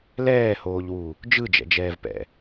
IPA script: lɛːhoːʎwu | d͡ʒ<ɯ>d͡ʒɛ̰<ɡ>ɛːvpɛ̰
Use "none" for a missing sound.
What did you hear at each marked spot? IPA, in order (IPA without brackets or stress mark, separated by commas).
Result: ɯ, d͡ʒ